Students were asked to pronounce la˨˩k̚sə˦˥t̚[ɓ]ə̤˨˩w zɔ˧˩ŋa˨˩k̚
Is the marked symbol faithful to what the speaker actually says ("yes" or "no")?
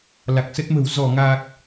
no